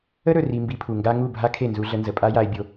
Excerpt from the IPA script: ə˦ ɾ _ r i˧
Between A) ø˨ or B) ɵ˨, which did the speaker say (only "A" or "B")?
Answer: B